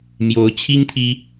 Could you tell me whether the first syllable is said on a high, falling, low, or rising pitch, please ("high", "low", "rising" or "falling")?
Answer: rising